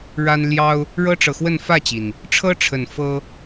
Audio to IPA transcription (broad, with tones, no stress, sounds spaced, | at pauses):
ɻ a˦ n l j ɑ˦ ʊ̯ | ɻ ɤ˦ ʈ͡ʂ ɤ˨ x w ə˥˨ n f ä˥˨ t͡ɕ i˩ n | ʈ͡ʂʰ ɤ˦ ʈ͡ʂʰ ə˨˩ n f ɤ˦